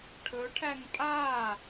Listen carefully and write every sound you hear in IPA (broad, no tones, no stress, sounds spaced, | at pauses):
ʈʰ ɵ ʈʰ æ ŋ pʼ a